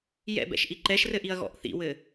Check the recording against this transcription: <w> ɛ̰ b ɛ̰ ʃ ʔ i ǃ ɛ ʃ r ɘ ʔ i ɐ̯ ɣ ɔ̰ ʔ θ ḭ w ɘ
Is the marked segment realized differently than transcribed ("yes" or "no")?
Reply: yes